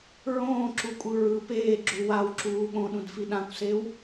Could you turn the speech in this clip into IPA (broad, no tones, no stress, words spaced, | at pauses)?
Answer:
ɹõːǁukʷʼɯ ɹɯ peːɡ͡ǁu wawǁuː ɠõɗũdfi ɗãkʷsew